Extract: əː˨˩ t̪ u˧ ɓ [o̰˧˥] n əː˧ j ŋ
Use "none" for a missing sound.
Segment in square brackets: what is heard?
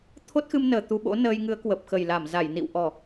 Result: o̰˧˥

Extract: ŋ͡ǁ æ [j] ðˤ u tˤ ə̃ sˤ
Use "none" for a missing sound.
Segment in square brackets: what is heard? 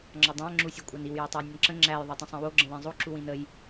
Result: j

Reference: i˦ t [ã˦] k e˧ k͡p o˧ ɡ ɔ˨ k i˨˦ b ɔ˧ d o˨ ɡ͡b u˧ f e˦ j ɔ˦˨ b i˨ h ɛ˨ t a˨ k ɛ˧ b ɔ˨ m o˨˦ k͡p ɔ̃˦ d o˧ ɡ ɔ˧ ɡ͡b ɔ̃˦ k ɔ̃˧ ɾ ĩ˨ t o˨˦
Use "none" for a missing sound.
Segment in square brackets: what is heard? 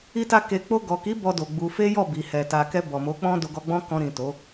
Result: a˦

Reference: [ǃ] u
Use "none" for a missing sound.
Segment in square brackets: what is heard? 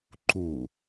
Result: ǃ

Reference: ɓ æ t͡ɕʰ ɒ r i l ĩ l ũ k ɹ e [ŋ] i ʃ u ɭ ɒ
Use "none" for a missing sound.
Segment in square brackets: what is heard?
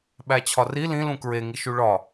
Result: ŋ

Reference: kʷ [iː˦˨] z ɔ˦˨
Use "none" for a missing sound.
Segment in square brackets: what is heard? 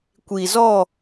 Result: iː˨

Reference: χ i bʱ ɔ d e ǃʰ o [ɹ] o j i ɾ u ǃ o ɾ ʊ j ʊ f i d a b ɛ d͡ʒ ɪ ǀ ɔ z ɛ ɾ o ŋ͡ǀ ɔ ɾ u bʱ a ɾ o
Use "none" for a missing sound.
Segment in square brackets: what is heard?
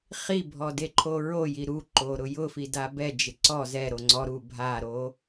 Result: ɹ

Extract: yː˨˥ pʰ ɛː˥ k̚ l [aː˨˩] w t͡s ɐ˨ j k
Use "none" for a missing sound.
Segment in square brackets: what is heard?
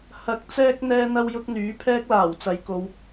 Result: aː˨˩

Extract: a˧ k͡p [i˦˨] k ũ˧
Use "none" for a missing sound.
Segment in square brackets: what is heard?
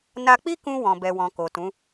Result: i˦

